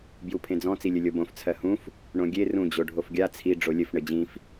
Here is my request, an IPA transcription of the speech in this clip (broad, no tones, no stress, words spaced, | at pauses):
bjupʰẽd͡zɔ̃ t͡silʲɘlʲobõf t͡sʰɜhũf | ɳõɡʲe rũ d͡ʑoɖʱofɡʲa t͡sʰi ɖ͡ʐolʲɘf ɳɘd͡ʑĩf